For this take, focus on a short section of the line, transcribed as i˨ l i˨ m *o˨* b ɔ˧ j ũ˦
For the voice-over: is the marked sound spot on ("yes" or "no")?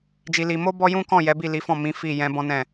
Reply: no